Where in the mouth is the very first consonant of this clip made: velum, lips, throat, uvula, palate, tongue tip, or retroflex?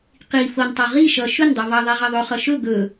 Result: uvula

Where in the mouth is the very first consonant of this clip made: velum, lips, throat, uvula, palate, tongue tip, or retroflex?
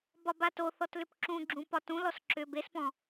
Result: lips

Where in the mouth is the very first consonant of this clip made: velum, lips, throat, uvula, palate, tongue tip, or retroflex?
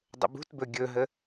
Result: tongue tip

